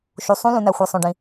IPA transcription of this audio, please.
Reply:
ʃ u˨ sˤ ũ˦˥ l ũ˨ n æ˨ xʷ e˨ sˤ õ˨ ɖ ĩ˨

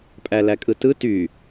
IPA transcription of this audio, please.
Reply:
pʼ æ l æ kʼ ɯ t ɯ t y

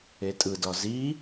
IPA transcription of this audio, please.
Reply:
e tʼ ɯ d ɒ z i

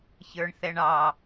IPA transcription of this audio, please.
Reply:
ç ə˞ ɳ θ ɛ ɳ ɑ

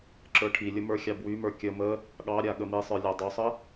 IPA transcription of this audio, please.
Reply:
ǁ ə˞ ʈʰ i lʲ ə m ə˞ xʲ ɑ b w y m ə˞ kʲ ə m ə | ɠ ɑ ɾʲ a ɠ ə m i sˤ ə˞ lʲ ɑ dˤ y sˤ ə

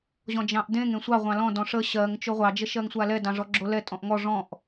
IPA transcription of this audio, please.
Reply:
ʑ ɔ̃ d͡ʒ ɑ̃ ʔ d ẽ ŋ ẽ sʷ ɑ ʁʷ ɑ̃ l ɔ̃ d ɔ̃ ʂ ə ɕ ɜ ŋ t͡ʃ o ʁʷ ɑ d͡ʒ ə ʃ ɜ ŋ sʷ a l ɛ d ɑ̃ ʐ ɔ ɡ͡ǁ o l ɛ tʼ ɔ̃ ʔ ŋ ɔ ʐ ɔ̃ ʔ

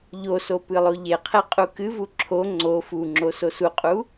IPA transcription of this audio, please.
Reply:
ʎ o s o p ɨ lˠ o ʎ e qʰ e qʼ u k ɨ v u ǁʰ o ŋ͡ǀ o f u ŋ͡ǁ o s o s u qʼ u

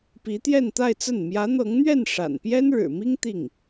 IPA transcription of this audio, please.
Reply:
p i˧˥ t̪ j ɛ˥˧ n t̪ a˥˧ ɪ̯ t͡s ə˥˩ n m j ä˧˥ n̪ ɤ˧˥ ŋ n̪ ɥ ɛ˥˩ n ʂ a̰˨˩ n p j ɛ˥ n ɻ ɻ̩˨˩ m i˥ ŋ t̪ i˥˩ ŋ

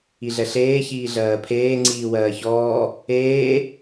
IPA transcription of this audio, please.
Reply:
i ɮ ɛ ɬ eː ç iː ɮ ɜː pʰ eː ŋ͡ǀ iː w ɜː ç ɔː | eː

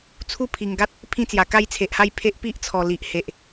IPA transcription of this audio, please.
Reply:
t͡sʰ u˥˧ pʰ i˨˩ ŋ ɡ a˦ t̚ | pʰ ĩ˦ t͡s j a˨˩ k a˦ j t͡sʰ e˨ ʔ h a˥˧ j pʰ e˦ ʔ p i˦ ʔ t͡sʰ ɔ˨˩ l i˨ ʔ h e˨ ʔ

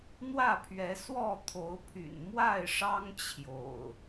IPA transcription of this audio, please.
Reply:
n̪ w ä˥˨ pʰ ɥ ɛ˨˦ s w ɔ˥˨ t̪ʰ o˨˦ ʊ̯ pʰ y̰˨˩ n m w a˥˨ ɪ̯ ʂ ɑ˦ ŋ t͡ɕʰ j o̰˨˩ ʊ̯

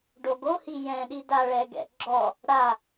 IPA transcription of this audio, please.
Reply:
ɖ o ɡ o h i j ɛ̃ ɗ i d a ɭ ɛ ɡ ɛ̰ ɡ͡ǁ ɔ | ɽ a

